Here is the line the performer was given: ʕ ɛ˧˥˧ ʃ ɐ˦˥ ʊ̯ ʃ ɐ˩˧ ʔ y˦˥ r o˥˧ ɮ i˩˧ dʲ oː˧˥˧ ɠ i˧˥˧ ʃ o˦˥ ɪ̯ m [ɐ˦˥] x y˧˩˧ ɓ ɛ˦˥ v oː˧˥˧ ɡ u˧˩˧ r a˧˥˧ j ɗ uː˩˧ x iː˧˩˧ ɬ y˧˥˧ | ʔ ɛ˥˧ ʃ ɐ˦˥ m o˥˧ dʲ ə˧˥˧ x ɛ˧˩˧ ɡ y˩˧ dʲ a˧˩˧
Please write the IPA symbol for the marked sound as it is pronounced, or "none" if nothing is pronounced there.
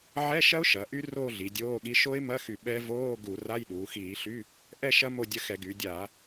ɐ˧˥˧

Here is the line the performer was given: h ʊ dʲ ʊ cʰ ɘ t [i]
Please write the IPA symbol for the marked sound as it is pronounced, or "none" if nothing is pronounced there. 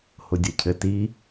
i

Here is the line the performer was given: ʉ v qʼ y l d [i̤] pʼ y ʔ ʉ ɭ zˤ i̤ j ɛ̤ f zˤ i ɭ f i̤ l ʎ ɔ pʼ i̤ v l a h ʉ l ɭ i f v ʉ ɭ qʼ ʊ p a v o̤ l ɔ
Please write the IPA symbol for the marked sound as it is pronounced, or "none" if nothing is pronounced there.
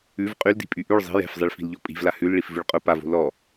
i̤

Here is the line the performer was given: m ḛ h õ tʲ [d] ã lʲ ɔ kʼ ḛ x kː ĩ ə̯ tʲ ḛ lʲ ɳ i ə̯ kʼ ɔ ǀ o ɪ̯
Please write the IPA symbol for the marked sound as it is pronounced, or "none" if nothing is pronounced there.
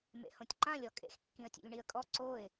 ǃ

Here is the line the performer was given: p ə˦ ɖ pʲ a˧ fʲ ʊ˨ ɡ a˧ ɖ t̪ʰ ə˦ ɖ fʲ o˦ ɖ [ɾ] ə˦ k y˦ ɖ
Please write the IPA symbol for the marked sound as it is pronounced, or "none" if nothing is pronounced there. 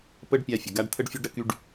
ɾ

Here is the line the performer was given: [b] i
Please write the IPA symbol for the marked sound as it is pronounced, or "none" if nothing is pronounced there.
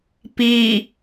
p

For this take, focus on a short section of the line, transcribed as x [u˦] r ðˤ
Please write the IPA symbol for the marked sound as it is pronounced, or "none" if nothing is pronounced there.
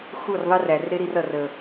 u˦˨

